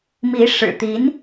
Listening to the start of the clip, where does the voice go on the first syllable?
rising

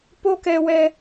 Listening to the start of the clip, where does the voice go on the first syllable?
high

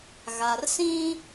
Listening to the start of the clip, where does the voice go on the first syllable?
low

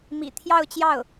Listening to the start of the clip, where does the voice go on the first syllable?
low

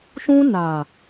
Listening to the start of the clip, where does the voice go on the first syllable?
high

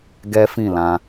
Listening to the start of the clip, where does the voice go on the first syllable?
high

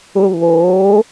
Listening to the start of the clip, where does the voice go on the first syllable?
high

